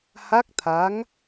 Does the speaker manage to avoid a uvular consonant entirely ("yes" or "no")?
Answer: yes